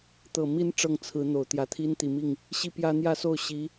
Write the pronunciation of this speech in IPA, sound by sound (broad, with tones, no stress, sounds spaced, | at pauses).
t̪ ɤ˨˩ m i˧˥ n ʈ͡ʂ ɤ˥˩ ŋ t͡sʰ ɹ̩˧˥ n̪ o˨˩ ʊ̯ t̪ j ä˧˥ t̪ʰ i˥ n t̪ i˨˩ m i˥˩ ŋ | ɕ i˥ p j ä˥ n̪ j ä˥˧ s o˥˩ ʊ̯ ɕ i˧˥